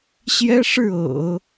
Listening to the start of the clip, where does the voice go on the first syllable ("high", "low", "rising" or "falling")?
high